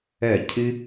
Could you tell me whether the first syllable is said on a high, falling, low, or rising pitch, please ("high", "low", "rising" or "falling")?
falling